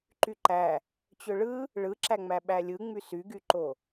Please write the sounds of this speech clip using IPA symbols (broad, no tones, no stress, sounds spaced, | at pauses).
ǃ y ǃ æ | t͡ɕ ø ɭ ɯ | ɭ ɯ ǁ æ ŋ͡m æ ɓ æ lʲ ɯ ŋ͡m y s y ɡ y ǃ o